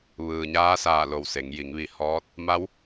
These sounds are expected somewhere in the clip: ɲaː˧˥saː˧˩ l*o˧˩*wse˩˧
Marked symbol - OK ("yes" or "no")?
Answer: yes